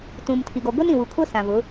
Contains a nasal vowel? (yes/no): yes